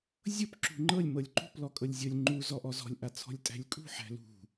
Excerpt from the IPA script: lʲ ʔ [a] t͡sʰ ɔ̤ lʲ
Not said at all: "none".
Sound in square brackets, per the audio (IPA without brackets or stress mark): a